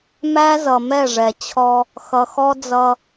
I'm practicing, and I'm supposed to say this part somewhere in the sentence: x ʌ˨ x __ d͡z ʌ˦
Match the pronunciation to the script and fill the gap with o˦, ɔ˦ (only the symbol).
ɔ˦